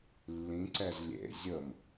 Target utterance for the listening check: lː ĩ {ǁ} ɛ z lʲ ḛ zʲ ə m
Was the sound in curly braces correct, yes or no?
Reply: no